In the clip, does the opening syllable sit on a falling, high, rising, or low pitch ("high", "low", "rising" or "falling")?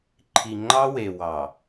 low